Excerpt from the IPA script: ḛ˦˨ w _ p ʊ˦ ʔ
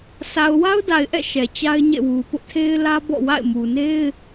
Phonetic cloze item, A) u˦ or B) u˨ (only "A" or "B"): B